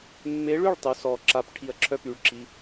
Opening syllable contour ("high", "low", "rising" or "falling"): rising